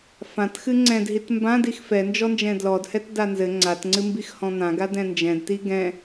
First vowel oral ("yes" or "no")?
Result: no